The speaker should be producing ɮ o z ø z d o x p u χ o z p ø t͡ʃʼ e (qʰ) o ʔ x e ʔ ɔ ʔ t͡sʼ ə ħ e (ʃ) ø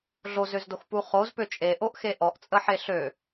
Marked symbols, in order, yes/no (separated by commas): no, no